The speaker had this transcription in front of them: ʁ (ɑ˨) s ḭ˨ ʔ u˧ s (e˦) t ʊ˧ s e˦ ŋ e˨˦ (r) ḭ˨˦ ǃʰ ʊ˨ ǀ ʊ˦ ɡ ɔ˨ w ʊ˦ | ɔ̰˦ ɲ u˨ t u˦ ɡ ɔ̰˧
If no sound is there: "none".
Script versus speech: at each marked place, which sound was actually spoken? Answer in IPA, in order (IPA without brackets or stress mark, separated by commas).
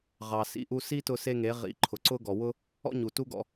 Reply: ɑ˨, i˦, ʁ